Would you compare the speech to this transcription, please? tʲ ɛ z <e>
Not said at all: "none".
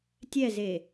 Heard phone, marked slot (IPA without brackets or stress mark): e